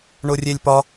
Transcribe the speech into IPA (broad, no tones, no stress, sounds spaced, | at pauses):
ɳ ʊ rʲ e lʲ p ɒ